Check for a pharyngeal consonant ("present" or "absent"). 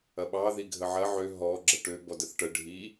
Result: present